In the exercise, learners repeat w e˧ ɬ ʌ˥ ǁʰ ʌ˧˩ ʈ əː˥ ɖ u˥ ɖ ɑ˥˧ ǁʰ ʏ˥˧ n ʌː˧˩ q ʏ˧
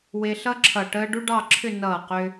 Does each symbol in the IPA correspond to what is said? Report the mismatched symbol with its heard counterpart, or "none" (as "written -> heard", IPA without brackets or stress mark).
none